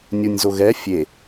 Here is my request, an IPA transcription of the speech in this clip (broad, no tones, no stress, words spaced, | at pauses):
nʲunʲzoɣɛ fʲe